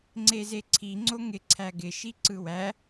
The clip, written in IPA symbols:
ŋ͡ǀ e z e ǀʰ i ŋ͡ǀ o ŋ ɪ ǀʰ æ ɡ ɪ ʃ i ǀ ɯ w æ

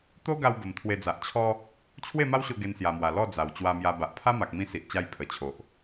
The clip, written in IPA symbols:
t̪ o˦ ɡ a˧ w b ə˨˩ m t̪ʰ w e˧ d͡z a˨ ʔ t͡ɕʰ ɔ˦ | t͡ɕʰ w e˥˧ m a˦ w ɕ o˧ ɡ e˧ n s j a˨˩ m w a˨˩ l ɔ˥˧ d͡z a˨˩ w t͡ɕ w a˧ m j a˧ b a˨ ʔ pʰ a˦ m a˨ k̚ m ĩ˧ s i˨ ʔ t͡ɕ a˧ j pʰ ə˨˩ t͡ɕʰ o˨ ʔ

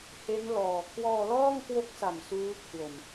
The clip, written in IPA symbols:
h e˦˥ n l ɔː˨˩ kʰ w ɔː˧ l ɔː˥˩ ŋ k w o˦˥ k̚ s a˨˩ m s uː˦˥ kʰ w o˨˩ n

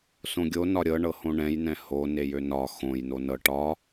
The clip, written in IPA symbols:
s õ ɡʲ o n ɒ ɾʲ ɤ ɳ ɤ h õ ɳ ɛ̃ j n ɛ̃ h o n e j ø n ɒ x õ j n o n ɤ ʈ ɒ

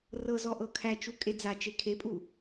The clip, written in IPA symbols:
r ɤ z ɔ ʔ ɤ kʰ æ t͡ʃ u kʼ e d͡z a t͡ʃ e kʰ e pʼ u

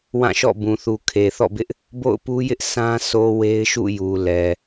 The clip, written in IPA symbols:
w ã˦˨ ʃ ɔ̰˦˨ b ũ˨ θ u˨ kʰ e˨ θ ɔ̰˦˨ b ɪ˦ ʔ | b o̰˦˨ ʊ̯ p u˦ j ɪ˦ ʔ sʰ ã˦ s o˨ w e˦ ɪ̯ ʃ ṵ˦˨ j u˨ l ɛ˨

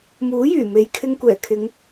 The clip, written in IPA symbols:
m uː˨˥ j yː˨˩ m e˨˧ j kʰ ɪ˧ ŋ kʷ ɛː˨˩ kʰ ɪ˨˧ ŋ

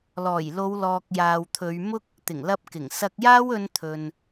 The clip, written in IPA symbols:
l ɔː˨˩ j l o˨˧ w l ɔː˨ k̚ j aː˨ w t̪ʰ ɵ˨˧ ɥ m ʊ˥ k̚ | t̪ ɪ˨˩ ŋ l ɐ˧ p̚ k ɪ˨˩ ŋ s ɐ˧ k̚ j aː˥ w ɵ˧ n t̪ʰ ɵ˨ n

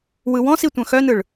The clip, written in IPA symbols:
w ɯ w ɔ̃ s i tʷ œ̃ x œ n ɯ ɭ

